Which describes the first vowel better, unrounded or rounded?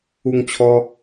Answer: rounded